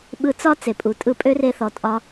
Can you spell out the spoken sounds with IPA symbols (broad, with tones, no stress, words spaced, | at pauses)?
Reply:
ɓɯ˧t͡sɒ˦ t͡se˨pʼu˨tʼɯ˧pʼø˦ re˧θɔ˨tʼɒ˧